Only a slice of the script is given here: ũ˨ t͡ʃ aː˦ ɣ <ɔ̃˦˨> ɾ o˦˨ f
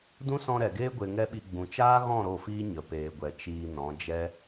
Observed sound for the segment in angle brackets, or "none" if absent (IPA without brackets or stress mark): ɔ̃˦˨